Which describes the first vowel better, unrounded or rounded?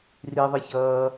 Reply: unrounded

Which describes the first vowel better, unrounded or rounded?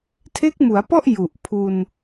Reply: unrounded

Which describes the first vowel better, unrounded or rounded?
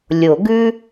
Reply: rounded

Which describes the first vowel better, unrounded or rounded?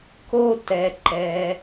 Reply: rounded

